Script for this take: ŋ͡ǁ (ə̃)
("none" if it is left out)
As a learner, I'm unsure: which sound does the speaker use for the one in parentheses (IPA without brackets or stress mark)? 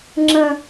ə̃